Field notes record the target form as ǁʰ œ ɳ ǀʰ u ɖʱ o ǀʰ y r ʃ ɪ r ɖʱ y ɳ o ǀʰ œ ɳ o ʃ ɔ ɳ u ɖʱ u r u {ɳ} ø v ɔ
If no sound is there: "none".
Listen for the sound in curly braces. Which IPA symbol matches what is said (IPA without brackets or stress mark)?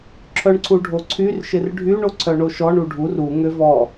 ŋ